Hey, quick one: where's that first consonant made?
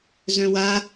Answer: tongue tip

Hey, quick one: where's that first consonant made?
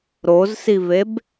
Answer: tongue tip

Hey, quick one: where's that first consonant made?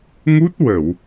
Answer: velum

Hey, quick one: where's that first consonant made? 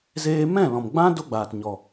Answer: tongue tip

